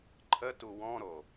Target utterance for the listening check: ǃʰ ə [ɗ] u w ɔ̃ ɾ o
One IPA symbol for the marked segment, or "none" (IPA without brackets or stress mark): t